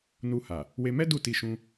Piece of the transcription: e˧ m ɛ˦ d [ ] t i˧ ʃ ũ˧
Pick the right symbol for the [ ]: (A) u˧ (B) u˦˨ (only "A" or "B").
B